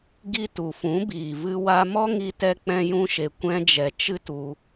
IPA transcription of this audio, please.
ɡ i˧ t u˨ f ũ˨˦ b iː˨ v ɨ˧ w a˧ m ɔ˦ ŋ i˧ t ɛ˧ k͡p ɛ̃˦ j ũ˦ ʃ e˧ kʷ ɛ̃˧ d͡ʒ ɛ˨ t͡ʃ ɨ˦ t u˧

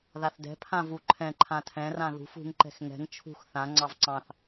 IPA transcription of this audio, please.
ð a θ d ɛ̤ pʰ ã v u ǃʰ ɛ̃ ǃʰ ã tʰ ɛ̃ r ã ð ṳ f ṳ ŋ ǃ ɛ̤ x ŋ ɛ̤ ŋ t͡ʃʰ ṳ x θ ã ŋ͡ǀ ɑ v ǀ ɑ̃ θ

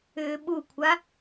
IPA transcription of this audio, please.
ʏː ɓ u kʷʰ a

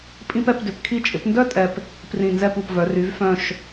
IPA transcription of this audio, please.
pʼ ĩ˥ p ɛ˥˧ p d ʏ˩˧ p kʰ i˧ t͡ʃʼ ɪ˩˧ p n d œ˥˧ tʼ ɛ˧˩ p | p r ĩ˧˩ n z ɛ˥˧ p u˧˩ p v œ˩˧ r y˩˧ v f œ̃˧˩ ʃ

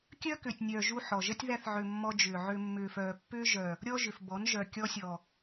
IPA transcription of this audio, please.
kʲ œː˦ k ʏː˨ tʲ nʲ œː˨ ʒ u˧ ħ ɔ˨ ʒ ə˦ tʲ ð æ˧ θ ʕ ʏ˨ mː ɔ˧ d͡ʒ ʏː˨ ʕ ʏ˧ mː ʏː˨ f œː˨ pː ʏː˦ ʒ œ˨ | ɾʲ ɔ˦ ʒ ʏ˨ f b ɔ˨˦ n ʒ œ˨ kʲ ɔ˧ sʲ ɔ˨

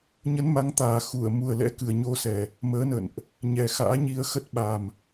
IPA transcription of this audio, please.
ɲ ə˨˦ n m a˨˦ ŋ t̪ aː˨˩ x u˧˩ ə̯ m u˨˩ ə̯ l ɛ̰˧˥ k ɨ˨˩ ə̯ ɲ o˧ s ɛ˨˩ | m əː˨˦ n ə̰˧˨ n ʔ | ɲ ɛ˨˩ x a̰ː˧˥ ɲ i˧ ə̯ x ə˦˥ t̚ ɓ a˨˩ m

